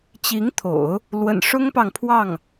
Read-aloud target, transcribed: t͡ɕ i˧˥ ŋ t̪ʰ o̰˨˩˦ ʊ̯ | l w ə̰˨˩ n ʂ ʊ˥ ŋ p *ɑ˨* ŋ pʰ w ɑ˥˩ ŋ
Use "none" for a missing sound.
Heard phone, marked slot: ɑ˨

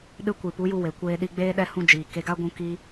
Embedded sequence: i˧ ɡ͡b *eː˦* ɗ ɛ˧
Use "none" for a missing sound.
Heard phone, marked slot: eː˦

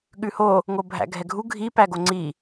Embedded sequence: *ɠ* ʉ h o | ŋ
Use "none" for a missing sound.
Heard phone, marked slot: ɠ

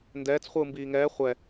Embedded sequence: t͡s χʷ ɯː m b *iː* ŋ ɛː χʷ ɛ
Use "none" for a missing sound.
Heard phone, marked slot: iː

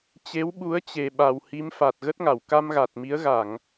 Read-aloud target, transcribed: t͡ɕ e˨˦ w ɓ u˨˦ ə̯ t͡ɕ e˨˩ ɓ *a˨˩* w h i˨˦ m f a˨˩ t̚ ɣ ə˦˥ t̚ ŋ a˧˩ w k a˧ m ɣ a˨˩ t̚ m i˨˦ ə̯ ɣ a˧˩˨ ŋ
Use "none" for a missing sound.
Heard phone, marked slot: a˨˩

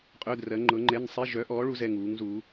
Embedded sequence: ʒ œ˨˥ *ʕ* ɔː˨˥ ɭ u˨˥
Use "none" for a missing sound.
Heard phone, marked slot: ʔ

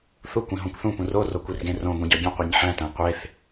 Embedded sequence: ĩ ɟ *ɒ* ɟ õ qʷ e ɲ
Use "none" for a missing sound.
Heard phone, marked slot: ɒ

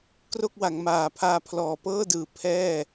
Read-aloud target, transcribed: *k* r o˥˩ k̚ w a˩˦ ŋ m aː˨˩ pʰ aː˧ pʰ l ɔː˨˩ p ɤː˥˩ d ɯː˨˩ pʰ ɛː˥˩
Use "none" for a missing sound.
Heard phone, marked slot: k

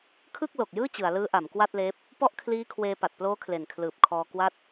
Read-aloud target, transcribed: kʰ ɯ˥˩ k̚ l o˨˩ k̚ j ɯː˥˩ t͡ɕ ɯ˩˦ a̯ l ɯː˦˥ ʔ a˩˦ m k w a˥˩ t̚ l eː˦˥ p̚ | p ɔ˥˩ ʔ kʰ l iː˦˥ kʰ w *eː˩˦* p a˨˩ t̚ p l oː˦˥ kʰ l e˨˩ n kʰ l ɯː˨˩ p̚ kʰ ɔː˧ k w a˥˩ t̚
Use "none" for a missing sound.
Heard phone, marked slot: eː˧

